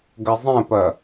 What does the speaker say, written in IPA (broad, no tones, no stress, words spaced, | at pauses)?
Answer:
ɡɐzˤɛ̃pɐ